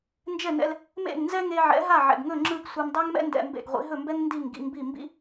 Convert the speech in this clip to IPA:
nd͡ʒɛ˥˩nɛ̰˧l | mḛ˥˩ŋnzɛ˥ŋe˧ ʕɛ̰˩˥ɦa˥˩ʕɛ̰˩ɡŋɵ˥˩ ŋ͡ǁɯ˥˩ɡsʷɛ˧m dˤa˥ŋmɛ̰˥ ndɛ̰˧mbḛ˥˩ɡʁʷḭ˩˥ ɦɵ˥˩mbɛ˥ŋ ndi˥˩ŋɡḭ˧ŋbi˥˩ mbḭ˥

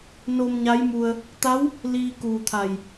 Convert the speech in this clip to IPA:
no˧mɲa˧˥jmu˧ə̯ | t̪a˧˥w | liː˧kuː˧˩t̪ʰa˧˩j

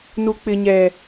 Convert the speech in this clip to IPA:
nu˦k͡pɪ˦ɲɛ˦

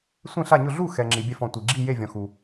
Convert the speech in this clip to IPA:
sʷẽ˥˨ɬa˥˨ɲʊ˥˨ ɮu˥˨xɛ˨ ŋ͡ǁi˨bʲɛ˥˨f ɔ̃˨tʷi˨ ɡ͡ǁi˥˨je˥˨vʲɔ̃˨ xu˨

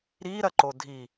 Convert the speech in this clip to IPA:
ɾiːɾɐǃo dʱi

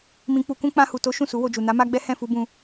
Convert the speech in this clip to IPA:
mĩ˧k͡pu˧kũ˦ k͡pã˧hu˨to˨˦ ʃũ˦˨su˨˦wo˧d͡ʒu˨ na˨˦ma˦ɡ͡bɛ˦ hɛ̃˦˨fu˧ bũ˧

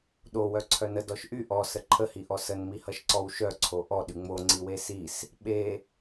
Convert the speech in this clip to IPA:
ɗo wœǀʰœnə dɔʃʔy ʔɔ səǃʰəhiʔɔ sənmihʌʃ ǀɔwʃœǀʰo ʔɔɗy ŋ͡mo ŋ͡ǀiwesis | ɓe

